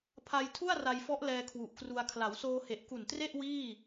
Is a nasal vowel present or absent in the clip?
absent